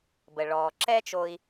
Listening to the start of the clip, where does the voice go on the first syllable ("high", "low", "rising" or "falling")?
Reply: low